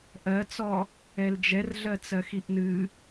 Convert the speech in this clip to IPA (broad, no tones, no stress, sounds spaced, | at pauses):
ʔ ɜ t͡s ɔ | ɛ l d͡ʒ ɛ r ɮ ɜ t͡s ɜ x i ʔ n ɨ